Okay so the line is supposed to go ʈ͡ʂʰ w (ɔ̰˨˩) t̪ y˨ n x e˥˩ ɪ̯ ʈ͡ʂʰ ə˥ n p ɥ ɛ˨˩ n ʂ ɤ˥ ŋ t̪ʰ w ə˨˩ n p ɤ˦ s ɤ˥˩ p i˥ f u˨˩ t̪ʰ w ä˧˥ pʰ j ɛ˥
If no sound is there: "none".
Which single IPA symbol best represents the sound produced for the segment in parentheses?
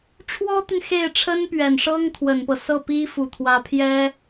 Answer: ɔ˥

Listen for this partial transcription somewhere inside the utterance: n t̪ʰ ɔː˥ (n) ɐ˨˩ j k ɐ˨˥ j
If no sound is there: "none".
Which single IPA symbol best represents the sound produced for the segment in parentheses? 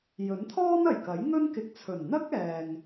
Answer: n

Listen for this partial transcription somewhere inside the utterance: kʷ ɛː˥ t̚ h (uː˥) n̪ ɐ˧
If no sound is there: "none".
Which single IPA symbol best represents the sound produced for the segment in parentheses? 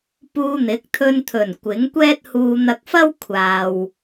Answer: uː˧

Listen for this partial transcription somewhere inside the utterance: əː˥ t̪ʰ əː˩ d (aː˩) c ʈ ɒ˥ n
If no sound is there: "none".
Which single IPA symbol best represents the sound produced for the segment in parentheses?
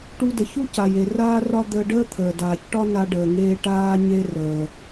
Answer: aː˩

